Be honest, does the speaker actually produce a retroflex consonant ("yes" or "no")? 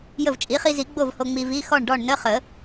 yes